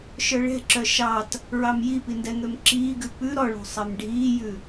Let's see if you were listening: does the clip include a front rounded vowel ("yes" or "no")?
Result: yes